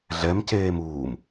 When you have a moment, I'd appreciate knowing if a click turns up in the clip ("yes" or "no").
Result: no